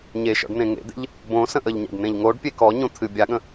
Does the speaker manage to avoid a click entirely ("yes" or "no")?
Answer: yes